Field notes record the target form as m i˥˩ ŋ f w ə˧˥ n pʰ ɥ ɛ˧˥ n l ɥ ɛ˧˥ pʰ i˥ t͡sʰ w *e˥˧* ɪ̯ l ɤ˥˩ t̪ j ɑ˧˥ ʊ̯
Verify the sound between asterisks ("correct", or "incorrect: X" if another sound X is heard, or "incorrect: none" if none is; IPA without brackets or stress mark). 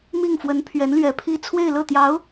correct